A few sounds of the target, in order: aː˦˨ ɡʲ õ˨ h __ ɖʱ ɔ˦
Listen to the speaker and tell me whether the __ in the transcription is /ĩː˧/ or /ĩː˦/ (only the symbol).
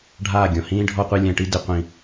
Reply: ĩː˦